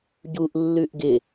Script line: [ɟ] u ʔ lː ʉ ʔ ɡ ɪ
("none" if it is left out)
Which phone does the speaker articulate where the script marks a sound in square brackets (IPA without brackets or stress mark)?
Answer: ɟ